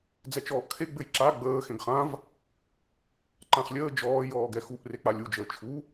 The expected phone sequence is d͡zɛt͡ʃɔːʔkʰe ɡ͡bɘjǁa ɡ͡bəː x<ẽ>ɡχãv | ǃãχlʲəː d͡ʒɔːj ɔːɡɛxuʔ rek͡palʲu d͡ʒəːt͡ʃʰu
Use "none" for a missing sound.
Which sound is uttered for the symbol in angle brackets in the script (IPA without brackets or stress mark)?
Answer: ẽ